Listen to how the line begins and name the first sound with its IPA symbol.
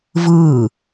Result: v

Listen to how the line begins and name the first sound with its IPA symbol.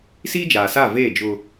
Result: s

